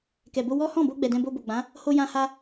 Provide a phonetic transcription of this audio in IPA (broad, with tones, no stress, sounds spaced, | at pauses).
k ɛ˨ b o˧ w ɔ˦ h ɔ̃˦˨ b o˧ ɡ͡b ɛ˨ d ɛ̃˧ b o˧ b o˨ ɡ͡b ã˨˦ | h o˧ j ã˧ h a˧